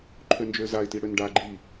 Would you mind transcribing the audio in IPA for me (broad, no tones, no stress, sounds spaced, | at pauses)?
ǃʰ ø n d͡ʒ ø z a ɪ̯ t i ɽ ø n ɖ a ɡ͡ǃ iː